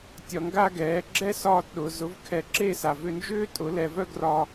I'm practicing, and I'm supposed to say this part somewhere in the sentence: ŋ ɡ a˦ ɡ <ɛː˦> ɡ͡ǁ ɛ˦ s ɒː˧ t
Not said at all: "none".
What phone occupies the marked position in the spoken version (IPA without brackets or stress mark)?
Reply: ɛː˨˦